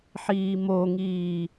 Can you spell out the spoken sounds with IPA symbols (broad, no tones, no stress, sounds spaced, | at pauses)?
ħ iː m o ŋ iː